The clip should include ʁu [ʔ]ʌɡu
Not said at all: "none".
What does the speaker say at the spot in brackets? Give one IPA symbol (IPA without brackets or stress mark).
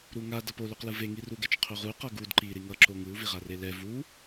q